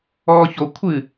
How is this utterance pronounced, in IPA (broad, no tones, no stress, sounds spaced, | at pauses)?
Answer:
ɔː ç o kʷʰ ɨ